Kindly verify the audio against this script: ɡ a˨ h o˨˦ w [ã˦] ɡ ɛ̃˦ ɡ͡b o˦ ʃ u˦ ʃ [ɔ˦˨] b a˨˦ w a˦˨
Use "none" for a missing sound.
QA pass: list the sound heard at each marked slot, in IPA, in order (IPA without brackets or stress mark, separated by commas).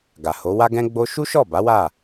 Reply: a˦, ɔ˦˨